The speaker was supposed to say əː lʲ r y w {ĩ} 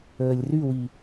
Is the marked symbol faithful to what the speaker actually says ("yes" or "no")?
no